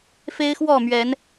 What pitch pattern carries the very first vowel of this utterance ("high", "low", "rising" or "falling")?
high